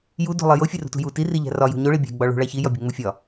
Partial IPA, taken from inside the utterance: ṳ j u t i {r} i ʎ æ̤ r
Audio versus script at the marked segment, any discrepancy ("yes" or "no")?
no